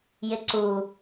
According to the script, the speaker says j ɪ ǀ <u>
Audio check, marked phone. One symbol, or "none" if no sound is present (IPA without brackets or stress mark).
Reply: u